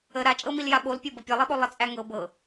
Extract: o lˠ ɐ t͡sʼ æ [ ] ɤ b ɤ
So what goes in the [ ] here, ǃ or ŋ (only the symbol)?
ŋ